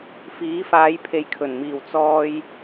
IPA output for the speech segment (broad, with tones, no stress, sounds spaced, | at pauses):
f iː˨˥ f aː˨˧ j pʰ e˨ j kʰ ɵ˨˩ n m iː˨˩ w t͡s ɔː˧ j